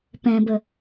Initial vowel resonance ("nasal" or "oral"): nasal